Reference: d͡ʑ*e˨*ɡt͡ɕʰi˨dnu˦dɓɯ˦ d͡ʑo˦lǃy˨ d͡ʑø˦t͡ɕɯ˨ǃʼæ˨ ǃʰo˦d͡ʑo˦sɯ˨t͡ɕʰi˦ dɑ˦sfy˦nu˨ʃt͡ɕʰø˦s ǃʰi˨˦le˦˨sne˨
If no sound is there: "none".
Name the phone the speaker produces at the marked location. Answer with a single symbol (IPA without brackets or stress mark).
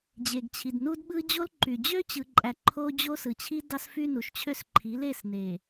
e˨